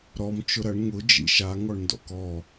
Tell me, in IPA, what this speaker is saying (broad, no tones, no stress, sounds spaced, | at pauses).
ɾ ɔ m t͡ʃ ʊ ɾ ɐ ɳ ŋ ʊ d͡ʒ ḭ ʃ a ŋ ɔ ɳ n d ɔ̰ k ɔ